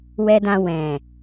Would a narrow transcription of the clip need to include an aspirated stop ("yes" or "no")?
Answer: no